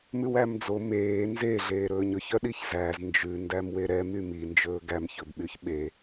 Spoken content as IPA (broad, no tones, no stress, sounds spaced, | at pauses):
m ʉ w æ m d͡z o m eː n z e ɮ eː ɾ ɵː ɲ ɵ ç œ ɗ i ç z æ z n d͡ʒ ʉ n d æ m w e ɾ ɛ m y m i n d͡ʒ ɵː ɡ æ m ç ɵ b ɓ y ç ɓ e